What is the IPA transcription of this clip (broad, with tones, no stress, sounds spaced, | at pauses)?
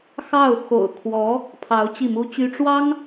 x ɑ˥˩ ʊ̯ x o̰˨˩ ʊ̯ kʰ w ɔ˧˥ | pʰ ɑ˧˥ ʊ̯ t͡ɕ i˥˩ m u˥ t͡ɕ y˥ ʈ͡ʂ w ɑ˥ ŋ